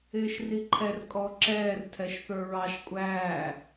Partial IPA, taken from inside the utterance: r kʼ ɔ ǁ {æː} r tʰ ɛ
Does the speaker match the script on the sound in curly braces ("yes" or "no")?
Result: no